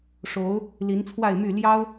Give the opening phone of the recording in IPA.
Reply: ʂ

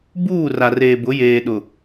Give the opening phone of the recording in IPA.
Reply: b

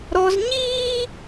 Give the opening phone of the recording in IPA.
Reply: ɾ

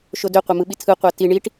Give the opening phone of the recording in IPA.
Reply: ʃ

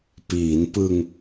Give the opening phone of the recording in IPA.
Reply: p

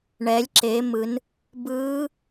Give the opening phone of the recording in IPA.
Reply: ɳ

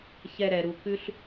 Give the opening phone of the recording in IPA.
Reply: ç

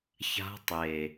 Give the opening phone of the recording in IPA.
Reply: ç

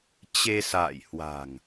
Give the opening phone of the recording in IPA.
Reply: t͡ɕ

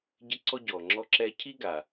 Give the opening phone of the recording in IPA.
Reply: ɟ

